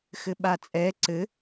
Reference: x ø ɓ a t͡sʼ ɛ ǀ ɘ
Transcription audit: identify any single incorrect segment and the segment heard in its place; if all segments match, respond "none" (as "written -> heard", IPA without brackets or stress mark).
ø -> ɘ